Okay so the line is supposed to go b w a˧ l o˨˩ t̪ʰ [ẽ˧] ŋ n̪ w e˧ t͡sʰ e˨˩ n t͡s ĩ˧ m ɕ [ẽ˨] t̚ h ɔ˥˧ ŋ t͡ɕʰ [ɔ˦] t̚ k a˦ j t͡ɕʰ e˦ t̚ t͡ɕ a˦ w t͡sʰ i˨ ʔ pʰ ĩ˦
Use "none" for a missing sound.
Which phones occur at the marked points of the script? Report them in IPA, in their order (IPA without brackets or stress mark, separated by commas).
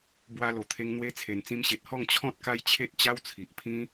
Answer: e˧, e˨, ɔ̃˦